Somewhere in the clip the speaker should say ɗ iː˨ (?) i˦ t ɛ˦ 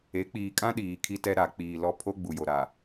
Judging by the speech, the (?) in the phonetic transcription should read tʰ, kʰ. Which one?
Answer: kʰ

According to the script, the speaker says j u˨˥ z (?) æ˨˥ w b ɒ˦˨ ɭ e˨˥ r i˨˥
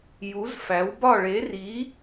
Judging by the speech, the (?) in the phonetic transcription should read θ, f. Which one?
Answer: f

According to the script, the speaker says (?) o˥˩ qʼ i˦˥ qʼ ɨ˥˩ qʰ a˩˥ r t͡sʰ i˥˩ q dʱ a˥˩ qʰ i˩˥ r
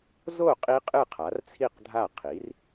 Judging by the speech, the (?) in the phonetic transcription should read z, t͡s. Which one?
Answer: z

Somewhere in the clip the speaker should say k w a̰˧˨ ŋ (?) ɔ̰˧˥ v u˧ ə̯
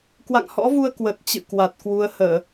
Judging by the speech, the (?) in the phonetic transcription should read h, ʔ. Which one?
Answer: h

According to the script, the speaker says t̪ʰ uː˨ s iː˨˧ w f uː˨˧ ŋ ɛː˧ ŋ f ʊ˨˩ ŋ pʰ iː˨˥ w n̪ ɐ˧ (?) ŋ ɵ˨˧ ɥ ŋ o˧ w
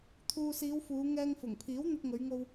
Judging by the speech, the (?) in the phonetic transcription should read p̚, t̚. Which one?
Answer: t̚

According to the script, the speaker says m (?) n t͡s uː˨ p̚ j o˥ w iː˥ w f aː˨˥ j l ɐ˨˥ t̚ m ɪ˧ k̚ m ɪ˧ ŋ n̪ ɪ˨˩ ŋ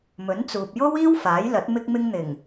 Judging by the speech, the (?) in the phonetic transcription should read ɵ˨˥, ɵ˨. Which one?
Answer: ɵ˨˥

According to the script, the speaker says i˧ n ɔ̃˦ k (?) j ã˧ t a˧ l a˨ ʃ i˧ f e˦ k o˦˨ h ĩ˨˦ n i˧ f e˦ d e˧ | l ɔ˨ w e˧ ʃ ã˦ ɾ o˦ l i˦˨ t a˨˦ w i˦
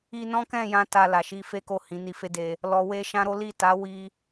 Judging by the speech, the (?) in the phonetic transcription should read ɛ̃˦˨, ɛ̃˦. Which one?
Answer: ɛ̃˦˨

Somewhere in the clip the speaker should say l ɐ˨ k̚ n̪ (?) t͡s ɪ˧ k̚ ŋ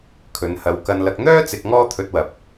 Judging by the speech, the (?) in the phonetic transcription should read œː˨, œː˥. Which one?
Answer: œː˥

